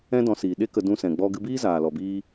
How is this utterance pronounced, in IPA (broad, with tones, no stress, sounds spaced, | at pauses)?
ɛ̃˦ d ɔ̃˧ s iː˨ ɗ e˦ k ə˧ d ũ˧ s ɛ̃˨ ɡ͡b ɔ˧ ɡ ɨ˧ b iː˦ z aː˨ l ɔ˨ b iː˦